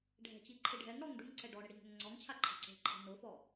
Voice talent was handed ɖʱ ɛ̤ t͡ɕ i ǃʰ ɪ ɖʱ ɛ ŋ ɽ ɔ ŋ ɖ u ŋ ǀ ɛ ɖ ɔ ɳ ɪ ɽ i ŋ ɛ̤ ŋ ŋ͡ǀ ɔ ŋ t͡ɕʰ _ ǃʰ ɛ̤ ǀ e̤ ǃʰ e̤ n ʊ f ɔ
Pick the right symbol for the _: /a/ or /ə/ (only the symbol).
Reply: a